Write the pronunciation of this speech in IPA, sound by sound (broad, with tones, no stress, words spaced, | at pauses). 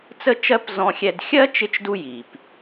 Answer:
t͡sə˥t͡ʃɜ˥p zɔ̃˥xʲɛ˥d xʲɜ˥ t͡ʃɪ˥t͡ʃdu˥ji˩p